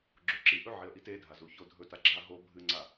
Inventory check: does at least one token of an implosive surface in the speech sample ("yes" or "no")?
no